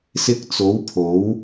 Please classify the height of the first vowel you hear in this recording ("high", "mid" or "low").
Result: high